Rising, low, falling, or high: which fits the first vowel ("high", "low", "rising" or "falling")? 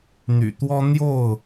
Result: low